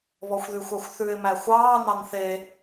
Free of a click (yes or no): yes